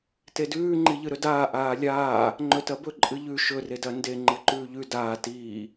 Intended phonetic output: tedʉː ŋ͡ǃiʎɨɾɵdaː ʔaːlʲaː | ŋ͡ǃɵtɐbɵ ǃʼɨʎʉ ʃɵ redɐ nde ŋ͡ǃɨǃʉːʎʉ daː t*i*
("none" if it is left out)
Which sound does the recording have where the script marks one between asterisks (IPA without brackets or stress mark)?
iː